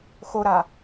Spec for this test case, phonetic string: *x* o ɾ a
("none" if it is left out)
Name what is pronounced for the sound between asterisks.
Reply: x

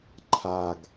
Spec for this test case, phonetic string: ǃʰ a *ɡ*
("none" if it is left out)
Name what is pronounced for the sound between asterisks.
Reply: ɡ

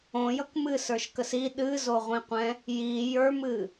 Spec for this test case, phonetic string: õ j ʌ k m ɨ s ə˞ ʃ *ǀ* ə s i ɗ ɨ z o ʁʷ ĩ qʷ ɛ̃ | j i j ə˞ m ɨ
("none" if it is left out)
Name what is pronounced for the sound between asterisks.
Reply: k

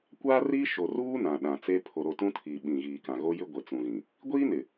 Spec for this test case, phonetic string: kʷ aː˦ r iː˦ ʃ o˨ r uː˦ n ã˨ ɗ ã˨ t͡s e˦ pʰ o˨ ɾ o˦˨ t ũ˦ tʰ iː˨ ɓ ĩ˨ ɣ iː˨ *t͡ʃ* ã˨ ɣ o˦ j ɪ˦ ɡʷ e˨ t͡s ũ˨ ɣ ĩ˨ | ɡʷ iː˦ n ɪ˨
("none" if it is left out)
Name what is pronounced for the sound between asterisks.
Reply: k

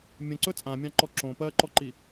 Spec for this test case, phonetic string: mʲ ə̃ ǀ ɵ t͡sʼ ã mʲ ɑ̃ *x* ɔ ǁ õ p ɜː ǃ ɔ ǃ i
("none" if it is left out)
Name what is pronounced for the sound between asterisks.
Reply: ǃ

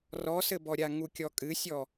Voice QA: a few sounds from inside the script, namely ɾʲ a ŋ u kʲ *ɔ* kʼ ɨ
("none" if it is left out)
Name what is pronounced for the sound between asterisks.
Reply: ɔ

